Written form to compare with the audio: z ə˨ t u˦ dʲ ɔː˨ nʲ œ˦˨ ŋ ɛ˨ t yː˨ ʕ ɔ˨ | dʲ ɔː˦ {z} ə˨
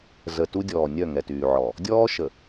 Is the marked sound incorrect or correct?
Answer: incorrect